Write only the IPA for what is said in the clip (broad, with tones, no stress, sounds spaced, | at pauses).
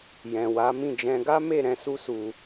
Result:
j ɛ̃˨ w a˨˦ m ĩ˦˨ d͡ʒ ɛ̃˧ ɡ a˦ m e˦˨ ɾ ɛ̃˧ s u˦ s u˧